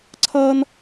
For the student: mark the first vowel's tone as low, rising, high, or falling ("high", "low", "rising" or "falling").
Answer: high